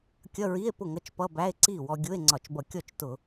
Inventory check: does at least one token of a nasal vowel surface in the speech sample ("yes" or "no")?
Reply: no